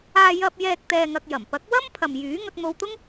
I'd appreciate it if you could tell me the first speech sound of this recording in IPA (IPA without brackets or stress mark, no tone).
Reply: aː